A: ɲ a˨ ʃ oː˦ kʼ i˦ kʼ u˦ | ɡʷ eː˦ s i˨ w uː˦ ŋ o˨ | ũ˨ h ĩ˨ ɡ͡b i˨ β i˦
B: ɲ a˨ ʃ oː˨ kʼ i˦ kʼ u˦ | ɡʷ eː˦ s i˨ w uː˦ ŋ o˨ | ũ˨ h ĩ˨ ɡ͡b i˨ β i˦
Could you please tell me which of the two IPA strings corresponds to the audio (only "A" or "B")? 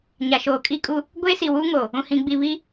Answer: B